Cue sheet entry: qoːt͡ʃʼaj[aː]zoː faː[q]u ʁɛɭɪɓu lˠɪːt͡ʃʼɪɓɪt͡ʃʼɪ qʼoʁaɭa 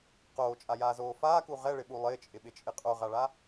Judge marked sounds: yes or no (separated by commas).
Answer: yes, no